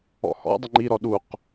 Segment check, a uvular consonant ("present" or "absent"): present